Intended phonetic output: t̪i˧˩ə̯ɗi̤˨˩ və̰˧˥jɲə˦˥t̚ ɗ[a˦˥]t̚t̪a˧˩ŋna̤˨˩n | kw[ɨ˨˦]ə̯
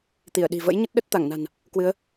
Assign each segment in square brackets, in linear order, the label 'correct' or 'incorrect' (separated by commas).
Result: incorrect, correct